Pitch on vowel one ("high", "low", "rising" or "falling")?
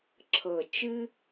low